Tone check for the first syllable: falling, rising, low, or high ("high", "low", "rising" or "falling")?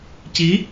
rising